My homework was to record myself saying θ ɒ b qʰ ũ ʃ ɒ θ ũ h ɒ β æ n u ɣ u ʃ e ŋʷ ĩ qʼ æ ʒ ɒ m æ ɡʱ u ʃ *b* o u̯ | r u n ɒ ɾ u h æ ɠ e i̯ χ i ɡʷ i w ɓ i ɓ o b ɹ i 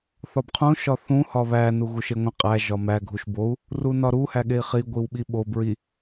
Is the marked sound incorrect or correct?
correct